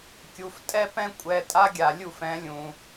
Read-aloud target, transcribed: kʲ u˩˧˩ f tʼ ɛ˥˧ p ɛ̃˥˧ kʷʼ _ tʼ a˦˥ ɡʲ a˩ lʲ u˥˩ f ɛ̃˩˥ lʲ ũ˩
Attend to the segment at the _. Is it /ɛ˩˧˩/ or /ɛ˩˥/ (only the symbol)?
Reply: ɛ˩˧˩